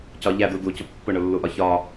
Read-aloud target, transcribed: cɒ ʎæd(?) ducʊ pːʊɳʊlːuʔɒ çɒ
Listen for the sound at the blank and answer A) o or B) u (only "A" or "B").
B